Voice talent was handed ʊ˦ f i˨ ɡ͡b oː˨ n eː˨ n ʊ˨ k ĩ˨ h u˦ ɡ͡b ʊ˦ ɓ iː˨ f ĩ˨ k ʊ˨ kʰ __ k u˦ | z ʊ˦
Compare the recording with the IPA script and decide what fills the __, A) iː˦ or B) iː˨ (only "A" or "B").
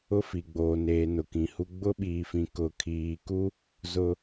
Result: B